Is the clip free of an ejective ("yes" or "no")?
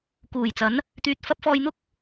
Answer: yes